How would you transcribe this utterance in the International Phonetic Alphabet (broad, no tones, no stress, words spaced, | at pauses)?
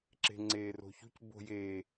ǁe̤ŋ͡ǀeːro̤çṳc bo̤jeː